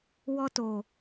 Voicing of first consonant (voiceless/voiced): voiced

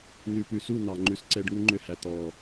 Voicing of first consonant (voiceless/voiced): voiced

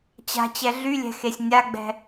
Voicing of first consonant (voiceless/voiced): voiceless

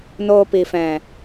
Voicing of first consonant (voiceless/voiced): voiced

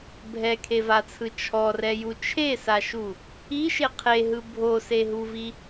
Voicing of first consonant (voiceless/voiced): voiced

